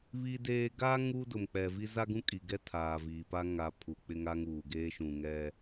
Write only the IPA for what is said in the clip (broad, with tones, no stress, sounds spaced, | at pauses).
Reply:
β i˦ d eː˦ ɡ aː˦ ŋ uː˦ d ʊ˨ m k͡p ɛ˨ v i˦ z a˦ ɡ ũ˦ kʼ i˨ ɡ ɛ˦ tʰ aː˨ v iː˨ p a˦ ŋ a˨ pʰ u˨ k͡p ɪ˦ ŋ a˦ ŋ uː˨ ɡ eː˦ ʃ ũ˨ ŋ ɛ˦